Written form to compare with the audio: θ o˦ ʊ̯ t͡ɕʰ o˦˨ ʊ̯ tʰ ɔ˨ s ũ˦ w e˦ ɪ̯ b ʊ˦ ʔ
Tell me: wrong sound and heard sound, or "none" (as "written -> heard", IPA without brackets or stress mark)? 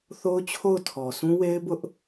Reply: none